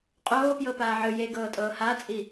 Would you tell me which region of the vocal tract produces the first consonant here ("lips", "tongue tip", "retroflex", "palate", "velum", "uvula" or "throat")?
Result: uvula